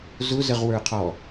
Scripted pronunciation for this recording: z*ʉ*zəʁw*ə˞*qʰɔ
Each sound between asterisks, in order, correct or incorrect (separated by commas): incorrect, correct